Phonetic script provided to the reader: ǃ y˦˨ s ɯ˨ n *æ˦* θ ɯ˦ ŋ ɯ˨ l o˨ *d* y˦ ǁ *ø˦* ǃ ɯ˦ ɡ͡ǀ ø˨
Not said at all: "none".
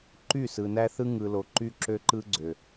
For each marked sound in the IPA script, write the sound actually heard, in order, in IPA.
æ˦, ǃ, ø˦

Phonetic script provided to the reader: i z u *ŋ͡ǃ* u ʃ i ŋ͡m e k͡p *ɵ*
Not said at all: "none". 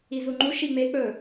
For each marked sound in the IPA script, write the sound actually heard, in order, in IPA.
ŋ͡ǃ, ɵ

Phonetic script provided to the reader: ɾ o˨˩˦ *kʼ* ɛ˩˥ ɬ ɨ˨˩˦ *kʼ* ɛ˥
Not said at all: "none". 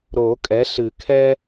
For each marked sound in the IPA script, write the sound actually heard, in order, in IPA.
kʼ, kʰ

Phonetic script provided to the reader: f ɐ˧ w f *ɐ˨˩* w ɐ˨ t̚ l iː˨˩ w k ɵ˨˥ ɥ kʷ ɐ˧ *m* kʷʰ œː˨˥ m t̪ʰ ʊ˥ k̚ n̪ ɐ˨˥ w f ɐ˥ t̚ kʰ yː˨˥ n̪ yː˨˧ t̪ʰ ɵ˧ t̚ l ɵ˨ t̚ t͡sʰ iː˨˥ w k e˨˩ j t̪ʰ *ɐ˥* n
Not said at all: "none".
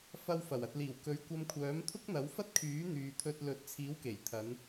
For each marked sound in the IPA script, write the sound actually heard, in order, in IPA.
ɐ˨˩, m, ɐ˨˧

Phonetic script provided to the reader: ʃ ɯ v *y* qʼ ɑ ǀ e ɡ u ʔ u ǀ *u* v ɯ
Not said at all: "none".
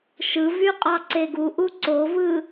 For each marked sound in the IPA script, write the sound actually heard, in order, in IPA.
y, o

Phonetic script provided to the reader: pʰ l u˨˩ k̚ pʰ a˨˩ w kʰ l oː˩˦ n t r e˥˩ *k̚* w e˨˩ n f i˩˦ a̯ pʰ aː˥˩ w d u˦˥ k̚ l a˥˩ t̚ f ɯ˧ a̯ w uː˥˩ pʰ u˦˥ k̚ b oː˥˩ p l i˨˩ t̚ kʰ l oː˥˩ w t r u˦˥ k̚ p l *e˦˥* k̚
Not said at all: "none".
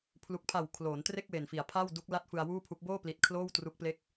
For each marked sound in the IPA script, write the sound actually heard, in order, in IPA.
k̚, e˥˩

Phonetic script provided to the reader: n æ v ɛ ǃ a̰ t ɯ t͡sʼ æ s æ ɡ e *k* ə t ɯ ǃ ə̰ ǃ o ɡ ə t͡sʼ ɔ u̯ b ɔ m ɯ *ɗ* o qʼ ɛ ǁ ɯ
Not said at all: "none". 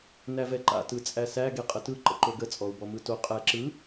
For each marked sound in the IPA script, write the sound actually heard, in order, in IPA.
qʼ, t

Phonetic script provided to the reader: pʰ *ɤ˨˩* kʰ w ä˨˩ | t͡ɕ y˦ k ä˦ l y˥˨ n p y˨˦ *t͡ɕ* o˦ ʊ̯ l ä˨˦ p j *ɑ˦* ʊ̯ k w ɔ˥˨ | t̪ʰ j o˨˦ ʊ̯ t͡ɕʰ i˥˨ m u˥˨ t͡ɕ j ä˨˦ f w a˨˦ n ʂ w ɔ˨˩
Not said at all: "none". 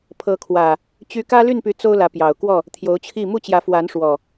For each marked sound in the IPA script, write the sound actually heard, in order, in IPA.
ɤ˨˦, t͡s, ɑ˨˩

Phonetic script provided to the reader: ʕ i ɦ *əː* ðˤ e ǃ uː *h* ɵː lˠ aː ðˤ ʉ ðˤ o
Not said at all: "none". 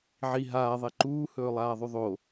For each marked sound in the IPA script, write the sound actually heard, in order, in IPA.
aː, h

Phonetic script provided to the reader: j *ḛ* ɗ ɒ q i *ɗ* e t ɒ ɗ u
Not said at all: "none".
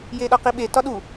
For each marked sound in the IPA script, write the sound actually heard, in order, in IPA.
e, ɓ

